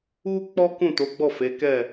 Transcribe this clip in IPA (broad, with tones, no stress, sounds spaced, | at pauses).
u˦ k͡p ɔ˦ k ũ˦˨ t o˨˦ ɡ͡b ɔ˦˨ f e˨˦ k ɛ˦˨